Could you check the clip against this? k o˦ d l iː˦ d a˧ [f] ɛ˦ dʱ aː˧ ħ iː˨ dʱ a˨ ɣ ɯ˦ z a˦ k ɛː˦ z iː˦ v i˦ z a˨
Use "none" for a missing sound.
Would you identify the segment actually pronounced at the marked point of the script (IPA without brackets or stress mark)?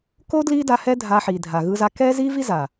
h